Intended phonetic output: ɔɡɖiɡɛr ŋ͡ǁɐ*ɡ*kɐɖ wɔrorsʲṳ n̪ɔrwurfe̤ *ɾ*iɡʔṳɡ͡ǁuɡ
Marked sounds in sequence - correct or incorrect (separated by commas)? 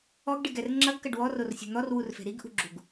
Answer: correct, correct